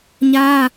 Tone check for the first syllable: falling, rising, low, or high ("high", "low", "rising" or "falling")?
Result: high